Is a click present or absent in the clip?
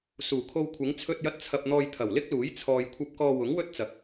absent